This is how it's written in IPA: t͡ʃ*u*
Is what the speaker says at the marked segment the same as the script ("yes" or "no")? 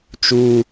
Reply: yes